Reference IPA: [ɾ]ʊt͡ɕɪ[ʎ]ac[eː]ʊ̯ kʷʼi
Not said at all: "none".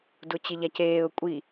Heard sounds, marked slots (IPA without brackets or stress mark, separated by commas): d, ʎ, eː